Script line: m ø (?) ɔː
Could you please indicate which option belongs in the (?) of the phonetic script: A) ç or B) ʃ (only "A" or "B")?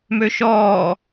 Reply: B